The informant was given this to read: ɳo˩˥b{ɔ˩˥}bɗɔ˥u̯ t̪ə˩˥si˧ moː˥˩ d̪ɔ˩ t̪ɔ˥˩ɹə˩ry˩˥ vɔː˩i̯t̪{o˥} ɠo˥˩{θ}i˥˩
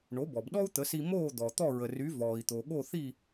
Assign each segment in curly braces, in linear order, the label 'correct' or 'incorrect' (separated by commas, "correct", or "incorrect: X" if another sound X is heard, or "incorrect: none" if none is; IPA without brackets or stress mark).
incorrect: ɔ˩, incorrect: o˩, correct